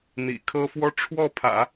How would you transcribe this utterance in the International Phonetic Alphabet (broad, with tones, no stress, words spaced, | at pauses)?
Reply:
n̪ḭ˨˩kʰɤ˥fwɔ˥ ʈ͡ʂʰwɔ˥˩pʰä̰˨˩˦